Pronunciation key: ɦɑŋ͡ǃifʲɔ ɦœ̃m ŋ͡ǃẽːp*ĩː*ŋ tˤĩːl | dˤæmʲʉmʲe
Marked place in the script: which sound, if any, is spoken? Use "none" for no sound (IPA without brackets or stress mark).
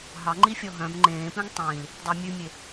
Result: ĩ